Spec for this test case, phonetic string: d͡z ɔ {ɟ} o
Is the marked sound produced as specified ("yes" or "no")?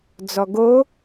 no